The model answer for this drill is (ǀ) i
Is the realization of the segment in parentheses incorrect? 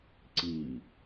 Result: no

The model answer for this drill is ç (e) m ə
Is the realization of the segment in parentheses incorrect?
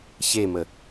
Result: no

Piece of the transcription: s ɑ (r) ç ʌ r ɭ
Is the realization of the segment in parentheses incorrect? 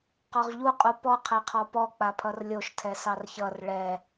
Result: no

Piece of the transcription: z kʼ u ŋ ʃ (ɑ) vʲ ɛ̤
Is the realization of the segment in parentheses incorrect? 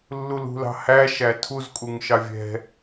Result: no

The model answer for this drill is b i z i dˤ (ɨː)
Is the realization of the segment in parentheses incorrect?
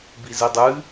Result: no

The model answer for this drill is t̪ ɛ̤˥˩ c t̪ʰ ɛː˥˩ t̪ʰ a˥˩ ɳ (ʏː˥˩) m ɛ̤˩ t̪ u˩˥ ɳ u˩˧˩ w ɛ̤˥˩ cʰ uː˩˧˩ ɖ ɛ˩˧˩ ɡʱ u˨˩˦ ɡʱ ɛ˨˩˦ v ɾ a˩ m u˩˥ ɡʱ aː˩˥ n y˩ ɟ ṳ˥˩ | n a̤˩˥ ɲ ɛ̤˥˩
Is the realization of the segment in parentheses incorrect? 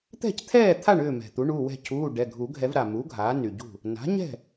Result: no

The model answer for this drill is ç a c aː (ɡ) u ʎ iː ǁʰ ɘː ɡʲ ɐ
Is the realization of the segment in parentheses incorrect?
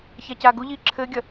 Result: no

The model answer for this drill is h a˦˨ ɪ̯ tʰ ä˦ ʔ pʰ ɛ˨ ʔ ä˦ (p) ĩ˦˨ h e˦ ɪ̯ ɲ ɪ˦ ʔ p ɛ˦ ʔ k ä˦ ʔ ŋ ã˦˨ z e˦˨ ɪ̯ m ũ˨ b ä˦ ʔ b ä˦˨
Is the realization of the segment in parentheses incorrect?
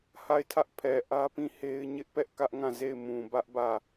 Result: no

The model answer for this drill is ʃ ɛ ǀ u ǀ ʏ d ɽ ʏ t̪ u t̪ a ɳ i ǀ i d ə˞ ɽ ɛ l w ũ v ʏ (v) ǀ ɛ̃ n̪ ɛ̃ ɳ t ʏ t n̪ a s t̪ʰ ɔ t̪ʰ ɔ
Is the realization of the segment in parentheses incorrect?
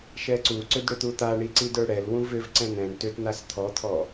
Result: no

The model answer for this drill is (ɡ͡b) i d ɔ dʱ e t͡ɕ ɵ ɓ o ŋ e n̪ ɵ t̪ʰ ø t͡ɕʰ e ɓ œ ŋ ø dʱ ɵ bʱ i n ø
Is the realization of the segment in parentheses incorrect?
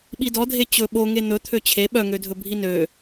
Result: yes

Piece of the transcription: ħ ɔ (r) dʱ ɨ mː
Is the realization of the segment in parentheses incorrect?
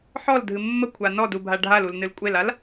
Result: yes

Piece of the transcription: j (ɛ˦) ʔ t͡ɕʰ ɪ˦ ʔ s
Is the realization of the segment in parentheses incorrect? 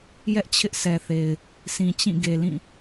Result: no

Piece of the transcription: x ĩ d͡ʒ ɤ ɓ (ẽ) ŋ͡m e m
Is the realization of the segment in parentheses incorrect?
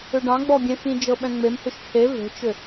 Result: yes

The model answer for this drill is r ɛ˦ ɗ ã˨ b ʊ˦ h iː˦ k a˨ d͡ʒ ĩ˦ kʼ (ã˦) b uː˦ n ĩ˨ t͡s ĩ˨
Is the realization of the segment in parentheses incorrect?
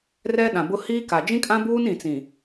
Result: no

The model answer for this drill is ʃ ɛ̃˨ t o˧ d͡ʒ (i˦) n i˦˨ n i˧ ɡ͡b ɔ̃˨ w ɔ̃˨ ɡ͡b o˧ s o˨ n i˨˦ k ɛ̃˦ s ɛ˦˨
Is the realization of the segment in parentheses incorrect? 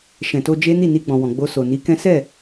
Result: yes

